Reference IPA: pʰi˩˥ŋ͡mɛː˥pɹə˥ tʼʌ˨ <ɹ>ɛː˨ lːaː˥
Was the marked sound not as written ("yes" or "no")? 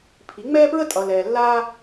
yes